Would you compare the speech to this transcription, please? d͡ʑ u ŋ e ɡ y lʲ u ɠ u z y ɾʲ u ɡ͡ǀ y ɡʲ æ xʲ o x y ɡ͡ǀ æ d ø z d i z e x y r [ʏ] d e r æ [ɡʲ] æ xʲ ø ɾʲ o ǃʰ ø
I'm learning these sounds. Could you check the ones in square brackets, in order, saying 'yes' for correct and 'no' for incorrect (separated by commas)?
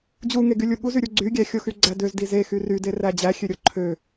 no, no